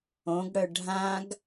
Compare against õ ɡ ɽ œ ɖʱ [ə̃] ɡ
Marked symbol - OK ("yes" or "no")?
no